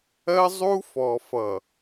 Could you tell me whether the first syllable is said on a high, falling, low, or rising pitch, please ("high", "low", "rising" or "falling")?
high